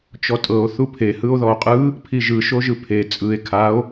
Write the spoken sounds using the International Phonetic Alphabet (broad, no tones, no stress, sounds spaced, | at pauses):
t͡ʃ ɔ tʼ ɤ o̯ θ u pʰ e h ɯ o̯ ð ɔ o̯ qʼ ɯ | pʰ i ʒ ɯ ʃ o ʒ ɯ pʰ e t͡sʼ ɯ e̯ kʰ a o̯